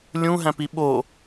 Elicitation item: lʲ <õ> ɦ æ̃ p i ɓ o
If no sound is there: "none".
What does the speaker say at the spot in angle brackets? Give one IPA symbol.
ũ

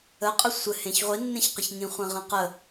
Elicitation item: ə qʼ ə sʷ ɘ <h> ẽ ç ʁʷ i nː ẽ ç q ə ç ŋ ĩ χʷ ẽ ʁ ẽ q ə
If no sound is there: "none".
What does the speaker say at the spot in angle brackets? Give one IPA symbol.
h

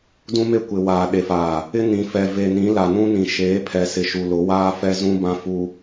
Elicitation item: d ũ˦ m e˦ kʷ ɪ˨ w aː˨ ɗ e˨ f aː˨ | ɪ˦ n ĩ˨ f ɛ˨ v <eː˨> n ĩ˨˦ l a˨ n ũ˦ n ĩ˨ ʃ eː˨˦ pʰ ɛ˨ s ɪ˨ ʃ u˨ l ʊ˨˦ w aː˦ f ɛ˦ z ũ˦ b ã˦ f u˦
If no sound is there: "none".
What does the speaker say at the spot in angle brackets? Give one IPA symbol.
e˨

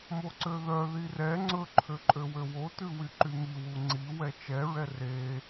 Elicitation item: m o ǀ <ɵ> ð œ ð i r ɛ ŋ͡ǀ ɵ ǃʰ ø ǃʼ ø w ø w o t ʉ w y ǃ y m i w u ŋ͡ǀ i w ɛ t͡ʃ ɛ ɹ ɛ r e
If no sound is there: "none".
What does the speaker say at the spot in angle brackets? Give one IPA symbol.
ø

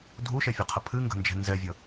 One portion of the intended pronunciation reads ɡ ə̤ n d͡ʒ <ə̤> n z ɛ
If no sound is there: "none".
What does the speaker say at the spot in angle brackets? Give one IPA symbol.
ɛ̤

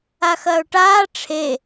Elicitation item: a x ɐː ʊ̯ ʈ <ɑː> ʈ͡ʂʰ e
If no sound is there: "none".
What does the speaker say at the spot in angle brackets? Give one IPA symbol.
aː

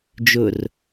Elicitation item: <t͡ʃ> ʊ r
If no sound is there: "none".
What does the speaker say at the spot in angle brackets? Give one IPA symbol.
d͡ʒ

